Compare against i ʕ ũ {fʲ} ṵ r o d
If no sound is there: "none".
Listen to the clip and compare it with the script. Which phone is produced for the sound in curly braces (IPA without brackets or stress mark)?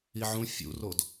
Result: fʲ